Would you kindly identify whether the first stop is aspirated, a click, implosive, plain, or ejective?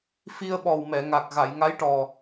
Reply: implosive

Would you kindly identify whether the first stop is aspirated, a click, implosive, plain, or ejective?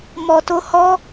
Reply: plain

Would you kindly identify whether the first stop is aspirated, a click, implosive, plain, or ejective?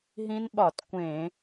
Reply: implosive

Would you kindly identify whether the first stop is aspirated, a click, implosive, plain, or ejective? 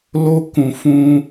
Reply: plain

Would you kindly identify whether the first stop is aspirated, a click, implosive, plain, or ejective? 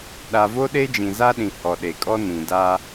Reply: implosive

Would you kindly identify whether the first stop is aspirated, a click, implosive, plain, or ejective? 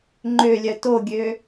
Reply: click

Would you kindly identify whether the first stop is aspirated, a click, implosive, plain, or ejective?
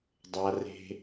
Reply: plain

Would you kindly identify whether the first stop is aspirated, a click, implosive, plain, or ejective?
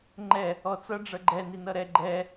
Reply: click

